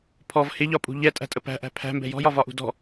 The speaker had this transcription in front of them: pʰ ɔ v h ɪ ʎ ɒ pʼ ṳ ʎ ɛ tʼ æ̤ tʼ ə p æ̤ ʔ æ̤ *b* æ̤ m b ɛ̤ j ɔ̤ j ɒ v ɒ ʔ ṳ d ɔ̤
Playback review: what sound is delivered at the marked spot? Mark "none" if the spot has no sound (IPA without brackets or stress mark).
pʰ